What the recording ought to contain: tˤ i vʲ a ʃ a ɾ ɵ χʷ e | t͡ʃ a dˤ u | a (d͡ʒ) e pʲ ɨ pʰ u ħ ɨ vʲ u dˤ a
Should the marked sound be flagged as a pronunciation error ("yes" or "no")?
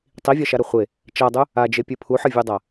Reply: no